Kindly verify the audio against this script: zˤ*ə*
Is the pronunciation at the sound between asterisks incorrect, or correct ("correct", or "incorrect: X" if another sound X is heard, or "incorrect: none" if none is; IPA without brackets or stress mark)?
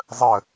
correct